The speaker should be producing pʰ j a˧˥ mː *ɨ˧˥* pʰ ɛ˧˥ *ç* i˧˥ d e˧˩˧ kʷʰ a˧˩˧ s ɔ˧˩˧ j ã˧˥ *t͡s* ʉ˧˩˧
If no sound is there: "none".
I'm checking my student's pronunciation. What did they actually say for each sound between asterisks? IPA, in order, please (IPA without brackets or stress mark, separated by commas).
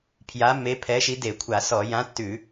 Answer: e˧˥, ʃ, tː